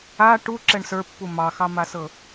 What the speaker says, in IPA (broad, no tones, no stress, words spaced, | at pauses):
a ʈu ǁɛɳsə˞pːu mɑxɑmasɤ